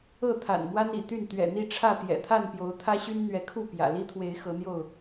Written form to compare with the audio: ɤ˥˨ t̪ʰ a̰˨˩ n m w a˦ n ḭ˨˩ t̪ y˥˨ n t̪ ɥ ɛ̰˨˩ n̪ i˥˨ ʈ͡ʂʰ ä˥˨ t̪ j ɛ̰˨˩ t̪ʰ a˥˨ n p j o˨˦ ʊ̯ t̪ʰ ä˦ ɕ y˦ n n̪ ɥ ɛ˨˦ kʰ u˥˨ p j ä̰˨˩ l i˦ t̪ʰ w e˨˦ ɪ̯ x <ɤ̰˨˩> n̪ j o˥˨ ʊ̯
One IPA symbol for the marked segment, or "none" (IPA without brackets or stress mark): ɤ˨˦